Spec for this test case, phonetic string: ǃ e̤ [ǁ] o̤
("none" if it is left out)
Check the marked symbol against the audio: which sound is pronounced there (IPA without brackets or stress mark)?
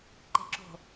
ǁ